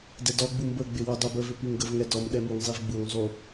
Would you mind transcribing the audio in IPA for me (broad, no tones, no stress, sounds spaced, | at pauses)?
d ɛ d ɔ ɡ͡b u m b ə ɡ͡b ɪ w u dˤ u b ə v ɪ p i ŋ ɡ ə v ŋ ɛ d ɔ m ɗ ɛ m u ŋ zˤ i v ɡ͡b u ŋ zˤ u